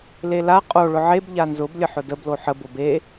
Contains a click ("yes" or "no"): no